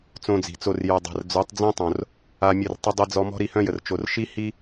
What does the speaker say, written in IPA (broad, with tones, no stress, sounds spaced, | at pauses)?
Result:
t͡s õ˧ d͡z i̤˨ t͡s o˧ r j œ˨ dˤ a̤˨ r d͡z ø˨˦ tˤ d͡z ẽ˦ tˤ õ˨ r | a˧ mʲ ə˦˨ r tˤ ə˧ dˤ i˧ d͡z ɔ˧ m ɔ̤˦ ɾ i˧ h œ̃˦ j ə˨ r t͡ʃ o˧ r ʃ i˦ h i˦